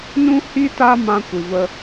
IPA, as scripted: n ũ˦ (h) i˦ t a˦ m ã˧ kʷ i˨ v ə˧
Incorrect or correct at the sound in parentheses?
correct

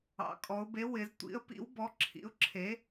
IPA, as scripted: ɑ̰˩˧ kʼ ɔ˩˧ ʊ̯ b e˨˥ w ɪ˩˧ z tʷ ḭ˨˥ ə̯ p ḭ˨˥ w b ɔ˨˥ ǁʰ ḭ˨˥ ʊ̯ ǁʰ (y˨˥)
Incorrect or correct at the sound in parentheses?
incorrect: e˨˥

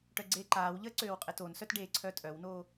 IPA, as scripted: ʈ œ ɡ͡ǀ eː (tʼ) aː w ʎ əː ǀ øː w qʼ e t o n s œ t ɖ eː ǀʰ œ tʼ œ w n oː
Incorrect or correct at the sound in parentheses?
incorrect: ǃ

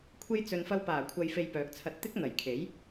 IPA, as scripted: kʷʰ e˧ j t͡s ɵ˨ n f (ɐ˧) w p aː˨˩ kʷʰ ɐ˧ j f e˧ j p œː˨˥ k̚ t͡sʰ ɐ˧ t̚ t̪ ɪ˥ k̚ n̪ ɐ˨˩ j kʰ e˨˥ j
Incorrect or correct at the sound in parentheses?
correct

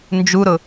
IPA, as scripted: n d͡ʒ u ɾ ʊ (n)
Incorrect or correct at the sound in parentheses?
incorrect: none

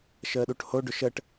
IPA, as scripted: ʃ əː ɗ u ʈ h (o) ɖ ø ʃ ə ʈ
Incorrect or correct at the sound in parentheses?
correct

